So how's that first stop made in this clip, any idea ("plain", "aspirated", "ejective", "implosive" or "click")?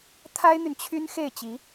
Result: aspirated